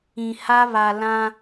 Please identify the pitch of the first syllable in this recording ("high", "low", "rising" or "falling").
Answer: low